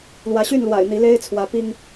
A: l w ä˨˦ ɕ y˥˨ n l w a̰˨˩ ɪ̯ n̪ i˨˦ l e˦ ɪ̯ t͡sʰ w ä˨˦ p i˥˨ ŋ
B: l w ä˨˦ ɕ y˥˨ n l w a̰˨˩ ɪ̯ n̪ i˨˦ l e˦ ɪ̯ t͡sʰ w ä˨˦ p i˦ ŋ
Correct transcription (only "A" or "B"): B